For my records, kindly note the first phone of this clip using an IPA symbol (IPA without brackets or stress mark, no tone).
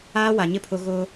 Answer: aː